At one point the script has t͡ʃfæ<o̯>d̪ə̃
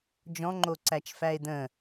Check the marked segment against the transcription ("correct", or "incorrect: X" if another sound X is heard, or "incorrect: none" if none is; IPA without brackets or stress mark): incorrect: e̯